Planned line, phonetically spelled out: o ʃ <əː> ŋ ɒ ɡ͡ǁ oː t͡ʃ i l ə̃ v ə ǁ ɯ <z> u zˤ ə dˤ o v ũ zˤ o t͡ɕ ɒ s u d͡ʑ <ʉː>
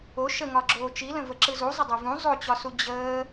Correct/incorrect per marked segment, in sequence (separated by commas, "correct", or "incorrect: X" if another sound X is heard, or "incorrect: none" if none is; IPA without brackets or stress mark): incorrect: ə, correct, incorrect: əː